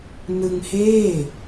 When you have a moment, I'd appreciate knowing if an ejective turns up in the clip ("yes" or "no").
no